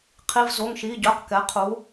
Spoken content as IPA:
qʰ i˩˧˩ v z o˩˧˩ ŋ ʃ i˩˧˩ ɟ œ˩˧˩ q k ɛ˩˧ qʰ u˩˧

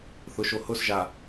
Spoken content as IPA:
θ ʊ ʃ o h ʊ s ʒ a

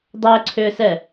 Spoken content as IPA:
dˤ ɛ ǀʰ ʏː s ɛ

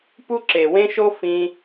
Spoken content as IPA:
p u˦ ǁ e˨ w ẽ˦ ʃ o˦ f ĩ˧

